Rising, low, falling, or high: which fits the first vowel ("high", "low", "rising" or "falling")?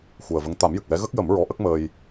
low